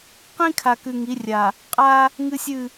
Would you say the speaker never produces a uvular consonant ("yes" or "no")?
no